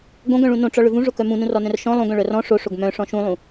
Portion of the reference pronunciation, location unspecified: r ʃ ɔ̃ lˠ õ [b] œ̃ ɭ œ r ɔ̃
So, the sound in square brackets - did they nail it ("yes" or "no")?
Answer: no